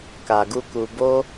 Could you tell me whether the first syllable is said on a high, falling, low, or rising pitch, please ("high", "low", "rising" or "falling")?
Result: low